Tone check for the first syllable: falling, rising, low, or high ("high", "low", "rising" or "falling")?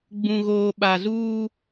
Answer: low